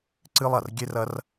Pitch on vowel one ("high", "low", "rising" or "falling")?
high